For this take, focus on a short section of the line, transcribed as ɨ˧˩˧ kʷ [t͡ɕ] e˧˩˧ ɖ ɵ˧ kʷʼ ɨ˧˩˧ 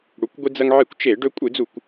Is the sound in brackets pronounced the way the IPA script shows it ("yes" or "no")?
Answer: no